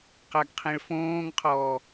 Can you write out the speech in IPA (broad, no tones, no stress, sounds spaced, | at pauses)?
q a ɡ qʰ ẽ ɭ f õː ŋ qʰ ɔː